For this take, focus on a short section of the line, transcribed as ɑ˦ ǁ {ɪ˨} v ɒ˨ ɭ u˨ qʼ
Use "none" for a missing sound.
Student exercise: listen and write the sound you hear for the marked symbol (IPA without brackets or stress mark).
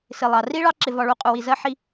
ɪ˨